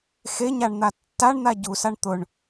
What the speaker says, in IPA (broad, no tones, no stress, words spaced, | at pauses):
xeɲaɳn̪a tːaɳn̪a ɟusaɳ t̪ʊɳ